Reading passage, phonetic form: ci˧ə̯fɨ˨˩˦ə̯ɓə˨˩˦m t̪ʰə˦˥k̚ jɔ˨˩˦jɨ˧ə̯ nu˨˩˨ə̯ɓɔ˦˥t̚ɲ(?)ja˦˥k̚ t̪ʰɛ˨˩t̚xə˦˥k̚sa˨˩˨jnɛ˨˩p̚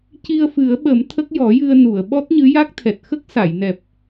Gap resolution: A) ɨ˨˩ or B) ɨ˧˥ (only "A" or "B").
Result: B